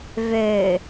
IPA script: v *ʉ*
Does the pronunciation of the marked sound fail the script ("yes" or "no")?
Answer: yes